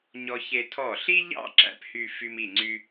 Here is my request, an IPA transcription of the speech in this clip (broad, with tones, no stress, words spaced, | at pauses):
ɲɔ˧çe˧ tʰɔ˧˩ɬi˥ʎɑ̰˥˧ ǁæ̰˧phy˥˧ fy˧mi˧˩ŋ͡ǀy˧